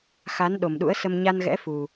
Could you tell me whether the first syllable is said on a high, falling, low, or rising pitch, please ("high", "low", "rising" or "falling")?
rising